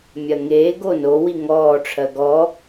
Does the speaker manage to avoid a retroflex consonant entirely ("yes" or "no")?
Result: no